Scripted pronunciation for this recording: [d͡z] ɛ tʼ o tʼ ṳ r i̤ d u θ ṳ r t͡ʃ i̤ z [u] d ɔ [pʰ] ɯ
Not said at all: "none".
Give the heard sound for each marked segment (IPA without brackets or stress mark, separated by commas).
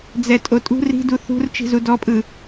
d͡z, u, pʼ